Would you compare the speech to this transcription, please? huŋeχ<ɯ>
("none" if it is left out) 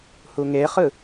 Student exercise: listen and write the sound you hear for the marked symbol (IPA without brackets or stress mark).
ɯ